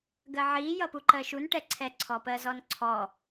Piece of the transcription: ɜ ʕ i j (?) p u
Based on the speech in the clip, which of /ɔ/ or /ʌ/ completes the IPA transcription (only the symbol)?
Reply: ʌ